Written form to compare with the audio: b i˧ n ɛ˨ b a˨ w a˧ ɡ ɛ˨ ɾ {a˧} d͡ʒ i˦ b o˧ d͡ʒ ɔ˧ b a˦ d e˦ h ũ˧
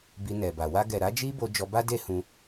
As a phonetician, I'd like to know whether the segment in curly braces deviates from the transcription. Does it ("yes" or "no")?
yes